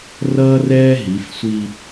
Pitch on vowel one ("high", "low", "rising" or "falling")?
high